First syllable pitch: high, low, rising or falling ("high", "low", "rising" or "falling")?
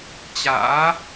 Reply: rising